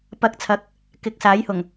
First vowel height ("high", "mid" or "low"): low